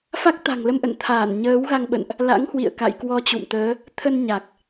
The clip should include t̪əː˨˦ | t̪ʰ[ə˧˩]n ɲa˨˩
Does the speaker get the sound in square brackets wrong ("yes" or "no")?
yes